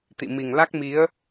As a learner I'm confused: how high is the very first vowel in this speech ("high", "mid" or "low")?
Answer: high